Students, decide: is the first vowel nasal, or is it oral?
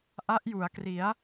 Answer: oral